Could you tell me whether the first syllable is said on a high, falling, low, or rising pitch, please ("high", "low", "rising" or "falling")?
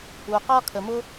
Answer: low